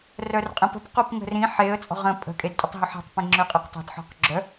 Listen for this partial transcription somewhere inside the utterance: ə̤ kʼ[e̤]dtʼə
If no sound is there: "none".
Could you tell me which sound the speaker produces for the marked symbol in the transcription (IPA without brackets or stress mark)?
e